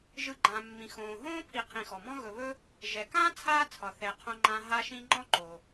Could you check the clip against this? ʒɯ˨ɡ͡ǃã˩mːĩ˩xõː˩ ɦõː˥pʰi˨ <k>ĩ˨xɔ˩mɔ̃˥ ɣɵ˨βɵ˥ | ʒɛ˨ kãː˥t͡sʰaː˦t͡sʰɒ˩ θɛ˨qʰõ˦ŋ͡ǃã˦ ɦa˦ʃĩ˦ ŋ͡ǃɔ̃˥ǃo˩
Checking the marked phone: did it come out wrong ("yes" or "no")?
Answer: yes